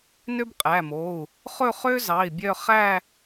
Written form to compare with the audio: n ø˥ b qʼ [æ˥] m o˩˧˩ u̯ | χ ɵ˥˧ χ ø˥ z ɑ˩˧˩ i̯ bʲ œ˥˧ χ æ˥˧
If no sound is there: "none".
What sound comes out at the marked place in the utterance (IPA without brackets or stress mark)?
æ˩˧˩